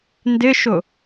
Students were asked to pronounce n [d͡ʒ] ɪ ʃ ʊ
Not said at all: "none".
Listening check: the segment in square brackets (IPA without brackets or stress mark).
d